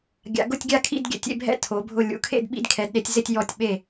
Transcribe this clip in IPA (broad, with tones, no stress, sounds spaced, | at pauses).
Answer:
ɡʲ a̰˧˥ ɡ ʊ˥˧ tʲ ɡʲ a˥˧ kʰ ḭ˥˧ d ɡʲ ɛ̰˧˥ tʲ ḛ˥˧ bʱ ɛ̰˥˧ tʰ o˧˥ bʱ ʊ˥˧ lʲ ṵ˧˥ kʰ ḛ˥˧ d ɓ ḭ˥˧ d kʰ ɛ˧˥ d ɗ e˧˥ tʲ z ɪ˥˧ tʲ j ɔ˥˧ tʲ ɓ e˥˧